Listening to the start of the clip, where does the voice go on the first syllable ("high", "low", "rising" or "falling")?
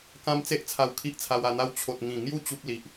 high